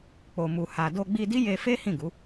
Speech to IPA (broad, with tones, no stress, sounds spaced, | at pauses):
k͡p o˨ m u˨ h a˨ d o˧ ɡ͡b i˧ d i˦ j e˧ f e˦ h ĩ˦˨ ɡ u˨˦